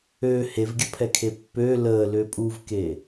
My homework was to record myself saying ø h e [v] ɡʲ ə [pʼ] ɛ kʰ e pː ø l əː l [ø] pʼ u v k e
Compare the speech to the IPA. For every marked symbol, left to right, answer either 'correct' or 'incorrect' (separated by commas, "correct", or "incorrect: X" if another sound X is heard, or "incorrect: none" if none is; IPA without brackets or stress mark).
correct, incorrect: pʰ, correct